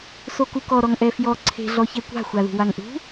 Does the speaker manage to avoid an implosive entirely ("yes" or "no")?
yes